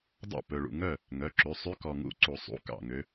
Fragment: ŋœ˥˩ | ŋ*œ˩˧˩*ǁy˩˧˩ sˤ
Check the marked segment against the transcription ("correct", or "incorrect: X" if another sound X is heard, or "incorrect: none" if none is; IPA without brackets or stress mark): correct